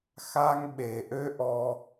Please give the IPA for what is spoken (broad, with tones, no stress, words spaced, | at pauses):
xa˦ŋɓe˨ ʔø˦ʔɔ˧